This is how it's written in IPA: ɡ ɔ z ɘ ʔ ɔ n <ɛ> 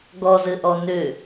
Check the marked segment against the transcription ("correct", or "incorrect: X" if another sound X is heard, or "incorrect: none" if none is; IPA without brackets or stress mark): incorrect: ø